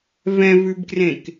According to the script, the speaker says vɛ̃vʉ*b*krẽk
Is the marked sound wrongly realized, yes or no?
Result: no